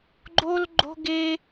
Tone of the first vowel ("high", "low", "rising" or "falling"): high